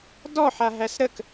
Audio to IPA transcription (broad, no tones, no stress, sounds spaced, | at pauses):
d ɔ ħ a ɦ æ s ɾ ə k